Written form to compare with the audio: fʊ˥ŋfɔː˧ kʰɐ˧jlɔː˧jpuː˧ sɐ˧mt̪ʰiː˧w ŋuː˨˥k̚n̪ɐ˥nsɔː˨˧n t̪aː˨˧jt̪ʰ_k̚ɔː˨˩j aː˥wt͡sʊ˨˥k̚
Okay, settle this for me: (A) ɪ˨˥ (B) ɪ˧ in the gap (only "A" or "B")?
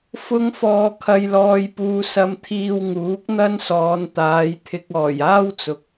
B